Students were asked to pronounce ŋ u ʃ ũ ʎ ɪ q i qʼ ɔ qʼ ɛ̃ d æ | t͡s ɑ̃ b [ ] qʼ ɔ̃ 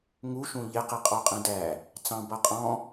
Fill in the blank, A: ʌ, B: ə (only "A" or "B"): A